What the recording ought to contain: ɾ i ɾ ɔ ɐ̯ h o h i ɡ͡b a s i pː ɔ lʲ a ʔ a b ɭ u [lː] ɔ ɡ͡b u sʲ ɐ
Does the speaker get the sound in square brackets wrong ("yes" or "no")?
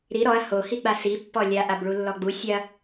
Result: no